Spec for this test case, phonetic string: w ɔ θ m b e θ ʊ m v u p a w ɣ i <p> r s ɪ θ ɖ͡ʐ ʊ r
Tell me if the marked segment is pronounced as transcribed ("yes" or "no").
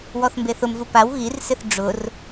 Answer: no